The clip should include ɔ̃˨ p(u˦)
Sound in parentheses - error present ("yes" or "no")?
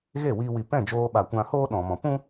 yes